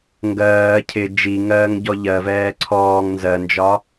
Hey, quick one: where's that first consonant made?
velum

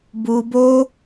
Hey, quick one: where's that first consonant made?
lips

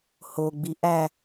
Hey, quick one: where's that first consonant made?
throat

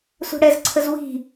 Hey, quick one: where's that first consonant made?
tongue tip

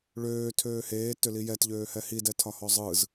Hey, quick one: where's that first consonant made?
retroflex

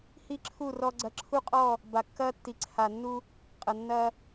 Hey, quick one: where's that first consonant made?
throat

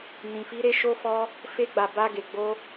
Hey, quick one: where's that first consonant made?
tongue tip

